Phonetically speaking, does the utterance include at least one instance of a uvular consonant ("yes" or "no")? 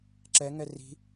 no